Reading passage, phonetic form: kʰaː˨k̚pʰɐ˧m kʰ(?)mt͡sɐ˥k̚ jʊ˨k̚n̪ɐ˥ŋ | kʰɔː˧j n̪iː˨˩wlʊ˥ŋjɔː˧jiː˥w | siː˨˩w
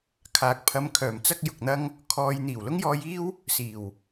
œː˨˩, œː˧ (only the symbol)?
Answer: œː˨˩